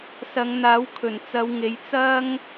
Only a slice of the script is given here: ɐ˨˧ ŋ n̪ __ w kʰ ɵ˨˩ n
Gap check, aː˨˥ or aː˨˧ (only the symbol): aː˨˥